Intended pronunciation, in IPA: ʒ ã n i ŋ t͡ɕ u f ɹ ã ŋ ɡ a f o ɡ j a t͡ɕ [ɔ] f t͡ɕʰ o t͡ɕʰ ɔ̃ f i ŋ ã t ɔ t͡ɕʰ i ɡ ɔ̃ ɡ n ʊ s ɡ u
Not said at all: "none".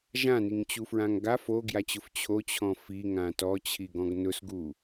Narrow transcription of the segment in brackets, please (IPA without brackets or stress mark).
ʊ